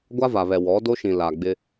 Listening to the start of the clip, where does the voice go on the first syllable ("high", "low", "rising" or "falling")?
high